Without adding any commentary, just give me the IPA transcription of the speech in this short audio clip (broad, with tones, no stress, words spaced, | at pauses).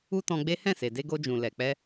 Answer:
u˦tɔ̃˧ɡ͡be˦ hɛ̃˦˨se˨ de˧ɡo˧d͡ʒũ˨ lɛ˨k͡pɛ˧